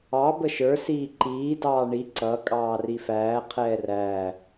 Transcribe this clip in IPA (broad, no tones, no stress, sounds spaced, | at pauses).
ɑ b ə ʃ ə˞ s iː ǃ iː d ɑː ɳ i ǀ ʌ kʼ ɑː r i f æː qʰ ɛː r æː